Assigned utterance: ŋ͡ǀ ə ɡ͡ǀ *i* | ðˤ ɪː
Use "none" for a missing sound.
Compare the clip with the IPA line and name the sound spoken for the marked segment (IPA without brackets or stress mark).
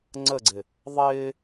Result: ɪ